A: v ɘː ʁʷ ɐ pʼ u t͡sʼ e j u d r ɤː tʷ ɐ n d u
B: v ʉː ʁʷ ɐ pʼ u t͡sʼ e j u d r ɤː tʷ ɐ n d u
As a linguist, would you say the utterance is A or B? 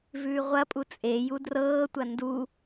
B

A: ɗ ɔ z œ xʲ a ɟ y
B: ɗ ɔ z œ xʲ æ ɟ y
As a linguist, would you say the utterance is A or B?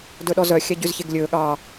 B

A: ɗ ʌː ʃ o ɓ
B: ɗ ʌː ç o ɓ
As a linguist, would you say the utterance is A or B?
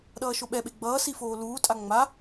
A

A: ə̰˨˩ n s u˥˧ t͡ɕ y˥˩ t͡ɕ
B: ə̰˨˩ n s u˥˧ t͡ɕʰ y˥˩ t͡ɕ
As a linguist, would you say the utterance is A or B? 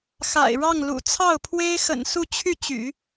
B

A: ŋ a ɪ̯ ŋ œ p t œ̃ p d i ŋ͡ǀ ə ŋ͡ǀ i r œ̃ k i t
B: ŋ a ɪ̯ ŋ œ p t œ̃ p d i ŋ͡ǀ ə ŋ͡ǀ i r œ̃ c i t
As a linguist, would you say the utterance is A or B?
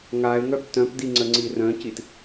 B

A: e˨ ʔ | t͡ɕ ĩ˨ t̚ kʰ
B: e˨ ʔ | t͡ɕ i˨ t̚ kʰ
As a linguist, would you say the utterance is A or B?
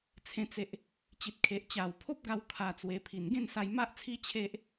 B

